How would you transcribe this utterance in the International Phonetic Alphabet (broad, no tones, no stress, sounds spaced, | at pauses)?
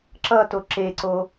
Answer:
ǁ ʌ t o ǁ e ǀ o